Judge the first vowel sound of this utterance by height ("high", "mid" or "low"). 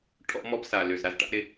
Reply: mid